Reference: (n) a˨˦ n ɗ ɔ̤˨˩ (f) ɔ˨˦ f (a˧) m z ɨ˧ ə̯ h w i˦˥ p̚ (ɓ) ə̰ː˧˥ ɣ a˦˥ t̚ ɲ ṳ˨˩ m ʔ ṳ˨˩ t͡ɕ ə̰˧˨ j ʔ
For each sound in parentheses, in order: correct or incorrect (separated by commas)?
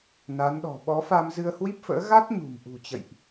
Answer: correct, incorrect, correct, incorrect